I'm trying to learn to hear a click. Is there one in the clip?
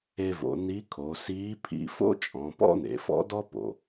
no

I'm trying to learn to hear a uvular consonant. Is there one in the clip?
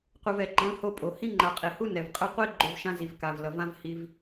yes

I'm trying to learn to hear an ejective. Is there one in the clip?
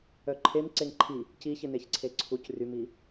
no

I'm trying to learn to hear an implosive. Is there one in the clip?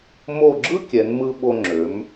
yes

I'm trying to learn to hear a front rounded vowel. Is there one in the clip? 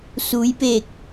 no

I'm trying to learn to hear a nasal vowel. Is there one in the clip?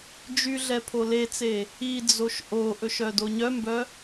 no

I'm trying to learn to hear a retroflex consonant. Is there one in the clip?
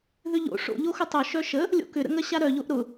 yes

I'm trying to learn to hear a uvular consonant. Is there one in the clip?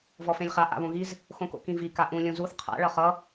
yes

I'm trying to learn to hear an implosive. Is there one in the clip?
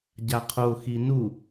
no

